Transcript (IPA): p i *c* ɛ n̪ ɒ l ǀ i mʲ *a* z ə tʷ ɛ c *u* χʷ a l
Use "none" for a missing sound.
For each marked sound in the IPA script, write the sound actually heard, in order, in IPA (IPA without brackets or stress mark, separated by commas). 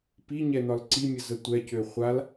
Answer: ɲ, ə, ø